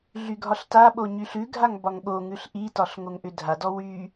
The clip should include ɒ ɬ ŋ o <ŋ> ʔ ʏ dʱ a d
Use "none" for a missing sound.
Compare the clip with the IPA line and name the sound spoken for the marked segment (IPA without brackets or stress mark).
ŋ